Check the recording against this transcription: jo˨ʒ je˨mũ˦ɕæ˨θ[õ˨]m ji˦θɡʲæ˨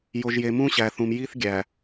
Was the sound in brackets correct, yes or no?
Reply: no